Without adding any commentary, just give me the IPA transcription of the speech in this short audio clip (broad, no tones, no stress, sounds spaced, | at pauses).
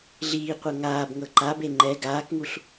ɮ iː qʷ ɤ ŋ aː b ŋ ɤ ǃ a b e ŋ͡ǃ ɛ ɡ aː k ŋ u ɬ